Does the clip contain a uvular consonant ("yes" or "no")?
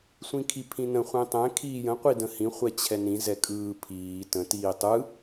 yes